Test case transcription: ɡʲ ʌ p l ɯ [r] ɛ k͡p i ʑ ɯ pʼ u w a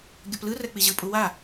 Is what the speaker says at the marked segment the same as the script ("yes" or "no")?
yes